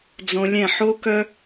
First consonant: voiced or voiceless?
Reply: voiced